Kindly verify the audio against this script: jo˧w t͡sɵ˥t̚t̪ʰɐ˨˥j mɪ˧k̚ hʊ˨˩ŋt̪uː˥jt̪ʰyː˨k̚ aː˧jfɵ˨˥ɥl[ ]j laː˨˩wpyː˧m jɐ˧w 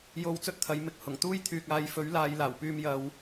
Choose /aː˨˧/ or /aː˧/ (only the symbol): aː˨˧